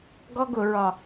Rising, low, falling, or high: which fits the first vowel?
high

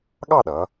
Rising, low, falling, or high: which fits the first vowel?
falling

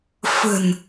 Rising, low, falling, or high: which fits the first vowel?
low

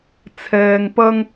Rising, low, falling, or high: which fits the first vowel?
low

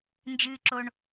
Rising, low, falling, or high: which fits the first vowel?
high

